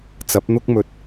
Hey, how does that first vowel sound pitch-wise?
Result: rising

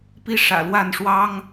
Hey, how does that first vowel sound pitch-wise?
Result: falling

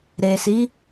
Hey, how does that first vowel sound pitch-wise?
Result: low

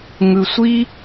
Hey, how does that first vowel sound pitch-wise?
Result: low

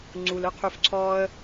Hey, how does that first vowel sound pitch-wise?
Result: low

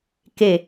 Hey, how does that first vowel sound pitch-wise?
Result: falling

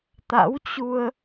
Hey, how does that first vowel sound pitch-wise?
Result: rising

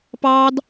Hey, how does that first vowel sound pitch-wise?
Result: high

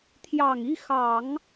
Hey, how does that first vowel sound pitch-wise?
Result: low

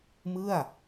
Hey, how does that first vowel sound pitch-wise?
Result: falling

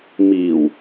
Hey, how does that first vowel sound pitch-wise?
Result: low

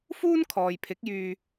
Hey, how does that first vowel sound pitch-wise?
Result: high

